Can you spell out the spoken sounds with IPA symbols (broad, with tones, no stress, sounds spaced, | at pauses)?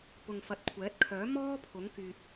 p ʊ˨ ŋ f ɐ˨ t̚ kʷʰ ɛː˨˥ t̚ kʰ œː˨˥ m ɔː˥ pʰ ʊ˨˥ ŋ k yː˨ p̚